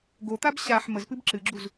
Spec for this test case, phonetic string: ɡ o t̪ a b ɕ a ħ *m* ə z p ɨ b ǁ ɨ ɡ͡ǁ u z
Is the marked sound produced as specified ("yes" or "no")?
yes